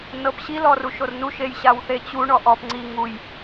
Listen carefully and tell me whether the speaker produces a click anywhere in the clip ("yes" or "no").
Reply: yes